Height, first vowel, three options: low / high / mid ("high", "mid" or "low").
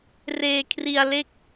mid